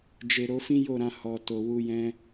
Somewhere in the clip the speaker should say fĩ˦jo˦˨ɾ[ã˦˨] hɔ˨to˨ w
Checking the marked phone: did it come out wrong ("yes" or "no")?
yes